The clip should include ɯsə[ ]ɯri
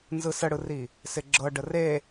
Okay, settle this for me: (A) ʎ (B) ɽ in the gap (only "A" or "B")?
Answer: B